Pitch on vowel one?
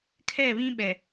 falling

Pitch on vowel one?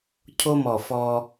high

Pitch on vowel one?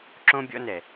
high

